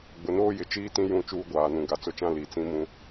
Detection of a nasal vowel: present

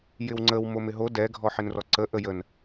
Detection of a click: present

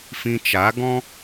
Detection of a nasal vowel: present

